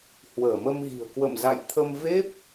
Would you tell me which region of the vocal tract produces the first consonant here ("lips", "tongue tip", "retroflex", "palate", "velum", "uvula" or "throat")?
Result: throat